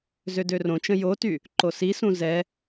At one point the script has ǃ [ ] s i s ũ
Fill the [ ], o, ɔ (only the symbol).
o